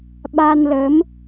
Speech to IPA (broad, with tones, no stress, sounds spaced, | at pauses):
ɓ a˧ n l ə˨˦ m